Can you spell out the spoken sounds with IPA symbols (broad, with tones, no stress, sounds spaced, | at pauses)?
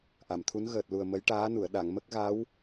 ʔ a˨˩˨ m t̪ʰ u˧˥ n ɣ əː˨˩ t̚ l u˨˩ ə̯ m ə˧˥ j ʈ aː˧˥ n u˨˩˨ ə̯ ɗ a˨˩˨ ŋ m ə˦˥ k̚ ɣ a˧˥ w